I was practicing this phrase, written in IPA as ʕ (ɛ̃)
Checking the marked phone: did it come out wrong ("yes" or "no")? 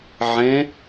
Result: yes